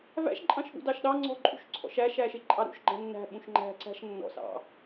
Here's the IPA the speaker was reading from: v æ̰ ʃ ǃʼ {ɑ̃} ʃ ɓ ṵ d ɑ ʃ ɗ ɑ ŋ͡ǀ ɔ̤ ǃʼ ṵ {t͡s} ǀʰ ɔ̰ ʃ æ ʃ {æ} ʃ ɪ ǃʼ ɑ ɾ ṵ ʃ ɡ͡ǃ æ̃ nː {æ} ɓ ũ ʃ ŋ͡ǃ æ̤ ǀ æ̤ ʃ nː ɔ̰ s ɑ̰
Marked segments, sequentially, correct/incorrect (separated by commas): correct, incorrect, correct, incorrect